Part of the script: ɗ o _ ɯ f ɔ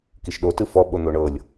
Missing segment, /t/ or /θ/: t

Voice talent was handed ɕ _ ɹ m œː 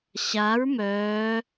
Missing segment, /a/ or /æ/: a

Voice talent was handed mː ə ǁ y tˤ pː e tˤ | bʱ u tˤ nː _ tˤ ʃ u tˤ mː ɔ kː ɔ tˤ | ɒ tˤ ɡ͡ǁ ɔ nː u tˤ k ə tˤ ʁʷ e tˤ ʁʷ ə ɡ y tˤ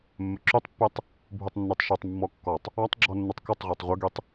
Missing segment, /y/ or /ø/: y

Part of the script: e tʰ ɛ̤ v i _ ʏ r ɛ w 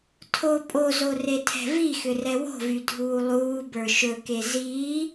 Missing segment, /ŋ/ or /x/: x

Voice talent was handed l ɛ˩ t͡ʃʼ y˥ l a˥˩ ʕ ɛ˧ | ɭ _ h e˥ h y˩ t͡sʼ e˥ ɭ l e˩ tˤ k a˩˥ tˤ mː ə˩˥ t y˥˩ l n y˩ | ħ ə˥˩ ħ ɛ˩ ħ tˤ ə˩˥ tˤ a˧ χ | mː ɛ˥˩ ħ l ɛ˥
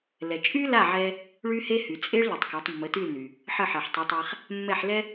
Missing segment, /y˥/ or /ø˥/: y˥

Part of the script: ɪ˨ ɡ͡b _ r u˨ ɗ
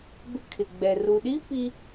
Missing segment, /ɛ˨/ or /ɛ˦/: ɛ˨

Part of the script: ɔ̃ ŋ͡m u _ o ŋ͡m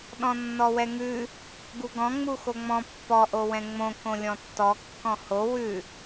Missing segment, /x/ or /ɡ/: x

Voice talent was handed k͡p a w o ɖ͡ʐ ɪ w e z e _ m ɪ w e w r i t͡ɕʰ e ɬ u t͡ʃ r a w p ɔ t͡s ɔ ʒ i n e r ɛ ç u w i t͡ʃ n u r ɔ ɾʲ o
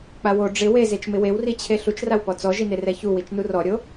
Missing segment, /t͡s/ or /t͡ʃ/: t͡ʃ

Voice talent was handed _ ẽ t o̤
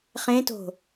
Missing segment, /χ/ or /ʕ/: χ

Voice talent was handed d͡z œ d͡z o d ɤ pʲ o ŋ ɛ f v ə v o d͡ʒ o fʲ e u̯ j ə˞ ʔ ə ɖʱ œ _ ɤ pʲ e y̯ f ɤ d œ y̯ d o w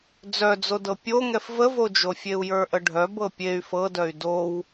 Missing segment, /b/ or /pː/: b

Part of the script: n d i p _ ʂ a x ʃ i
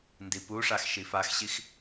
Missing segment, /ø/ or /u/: u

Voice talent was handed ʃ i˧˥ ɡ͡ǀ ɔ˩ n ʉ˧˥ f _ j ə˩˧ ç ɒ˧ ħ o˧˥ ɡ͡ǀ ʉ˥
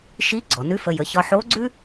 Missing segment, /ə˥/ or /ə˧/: ə˧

